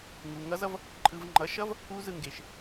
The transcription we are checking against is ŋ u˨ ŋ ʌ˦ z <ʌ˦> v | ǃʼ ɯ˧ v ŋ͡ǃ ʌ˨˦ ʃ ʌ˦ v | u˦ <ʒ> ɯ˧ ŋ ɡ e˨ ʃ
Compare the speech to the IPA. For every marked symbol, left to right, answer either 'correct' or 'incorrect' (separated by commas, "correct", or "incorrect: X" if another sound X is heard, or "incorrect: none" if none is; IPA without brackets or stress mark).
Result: correct, incorrect: z